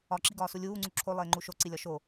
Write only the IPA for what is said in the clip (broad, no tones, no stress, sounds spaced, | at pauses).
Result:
ɒ ǁ i ɡ ɒː s u lʲ uː ŋ͡ǀ u ǁʰ o lˠ eː ŋ͡ǃ u ʃ o ǀ i lʲ ɒ ʃ o